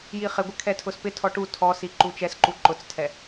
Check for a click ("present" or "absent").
present